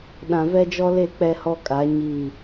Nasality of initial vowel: nasal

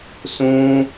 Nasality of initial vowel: nasal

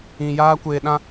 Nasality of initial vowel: nasal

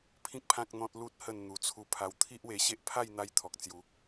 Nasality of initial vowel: nasal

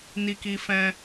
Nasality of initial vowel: oral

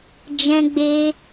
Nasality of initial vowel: nasal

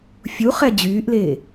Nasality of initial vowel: oral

